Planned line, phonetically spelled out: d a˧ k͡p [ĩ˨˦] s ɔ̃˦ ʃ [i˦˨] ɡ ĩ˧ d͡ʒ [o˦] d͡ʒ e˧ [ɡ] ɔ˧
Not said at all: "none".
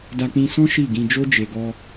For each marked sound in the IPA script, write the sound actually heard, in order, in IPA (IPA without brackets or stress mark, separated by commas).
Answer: ĩ˧, i˦˨, o˦, ɡ